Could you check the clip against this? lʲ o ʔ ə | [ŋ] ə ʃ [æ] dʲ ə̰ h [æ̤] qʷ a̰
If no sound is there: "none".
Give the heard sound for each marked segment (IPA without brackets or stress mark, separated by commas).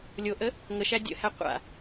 ŋ, æ, æ